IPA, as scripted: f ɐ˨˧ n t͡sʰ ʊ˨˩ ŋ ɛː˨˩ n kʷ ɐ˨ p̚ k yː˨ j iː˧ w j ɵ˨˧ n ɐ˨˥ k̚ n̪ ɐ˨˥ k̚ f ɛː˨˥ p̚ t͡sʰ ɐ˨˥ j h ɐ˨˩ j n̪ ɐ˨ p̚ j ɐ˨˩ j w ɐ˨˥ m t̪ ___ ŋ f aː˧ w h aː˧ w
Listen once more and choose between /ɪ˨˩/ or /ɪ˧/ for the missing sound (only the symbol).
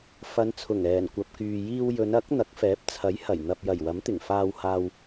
ɪ˨˩